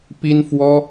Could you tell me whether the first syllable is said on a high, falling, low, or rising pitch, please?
high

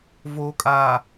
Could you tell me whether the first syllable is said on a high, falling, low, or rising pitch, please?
low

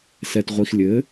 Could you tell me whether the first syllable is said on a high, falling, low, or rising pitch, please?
low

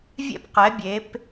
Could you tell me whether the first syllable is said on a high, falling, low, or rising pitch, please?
high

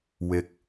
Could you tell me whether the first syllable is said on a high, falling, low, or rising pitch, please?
low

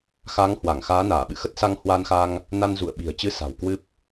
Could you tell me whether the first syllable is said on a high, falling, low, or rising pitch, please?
rising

